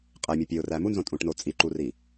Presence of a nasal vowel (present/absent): present